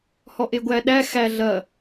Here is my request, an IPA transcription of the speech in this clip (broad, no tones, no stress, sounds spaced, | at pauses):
h ɔ ʔ e ɡʷ æ ɗ æ x æ ɮ ɐ